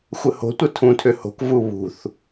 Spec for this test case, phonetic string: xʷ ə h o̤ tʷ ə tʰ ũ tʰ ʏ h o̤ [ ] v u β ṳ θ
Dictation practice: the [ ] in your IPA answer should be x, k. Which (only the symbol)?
k